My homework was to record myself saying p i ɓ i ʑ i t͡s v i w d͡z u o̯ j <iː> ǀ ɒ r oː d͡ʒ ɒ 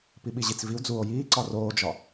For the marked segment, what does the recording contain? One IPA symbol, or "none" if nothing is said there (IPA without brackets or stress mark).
iː